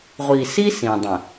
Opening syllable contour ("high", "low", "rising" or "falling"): low